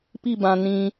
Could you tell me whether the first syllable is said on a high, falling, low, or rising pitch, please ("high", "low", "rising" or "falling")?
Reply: falling